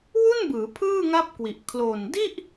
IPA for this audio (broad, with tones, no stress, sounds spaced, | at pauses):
w u˥˩ n b ɯː˩˦ pʰ ɯː˥˩ ŋ a˦˥ p̚ k w i˨˩ ʔ kʰ l o˨˩ n d i˥˩ ʔ